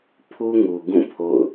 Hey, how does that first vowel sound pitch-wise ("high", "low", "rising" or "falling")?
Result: high